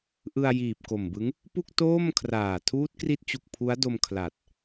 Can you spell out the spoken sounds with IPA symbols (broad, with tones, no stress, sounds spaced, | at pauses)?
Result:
ʔ ɯ˧ a̯ j iː˨˩ p̚ k o˨˩ m b ɯ˦˥ ŋ | p u˥˩ k̚ t oː˥˩ m kʰ r aː˨˩ tʰ uː˦˥ t̚ k r i˦˥ t̚ t͡ɕ u˨˩ k̚ pʰ u˦˥ a̯ d o˧ m kʰ l a˨˩ t̚